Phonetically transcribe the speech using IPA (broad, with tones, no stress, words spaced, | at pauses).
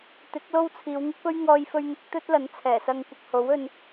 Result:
t̪ɪ˨˥k̚lo˥wt͡sʰiː˨˧w ŋɪ˥k̚pɵ˥ɥ ŋɔː˧jfɵ˧ɥn̪ɪ˨˥k̚ t̪ɵ˥t̚lɐ˨˥nt͡sʰɛː˨˩sɐ˧ŋ kʷɐ˧k̚ho˨˥wɵ˧n